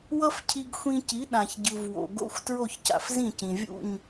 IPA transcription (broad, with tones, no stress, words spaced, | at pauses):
wʌ˥fcʰi˧ɡxʷĩ˧ci˩˥ ɗã˩ç ɟɯ˩v wo̰˩ɡo̰˥xʷ tɹo˥˩çca̰˩fzĩ˥˩cĩ˩ vʲṵ˥˩ɲ